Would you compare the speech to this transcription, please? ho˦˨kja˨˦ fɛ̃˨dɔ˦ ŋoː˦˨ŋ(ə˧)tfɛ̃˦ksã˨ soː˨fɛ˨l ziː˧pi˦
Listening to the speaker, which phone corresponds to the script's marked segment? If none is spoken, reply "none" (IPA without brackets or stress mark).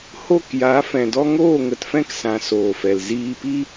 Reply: ə˨